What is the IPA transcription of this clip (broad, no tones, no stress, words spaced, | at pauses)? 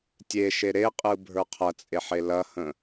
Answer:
tʲeʃe ɾeqʼɯ bʱə˞qʰɐt͡sʼeħe lɐhə̃